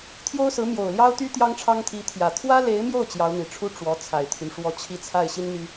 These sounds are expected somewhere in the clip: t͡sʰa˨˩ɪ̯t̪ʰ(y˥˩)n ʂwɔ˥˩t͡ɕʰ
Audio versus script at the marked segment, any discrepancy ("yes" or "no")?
yes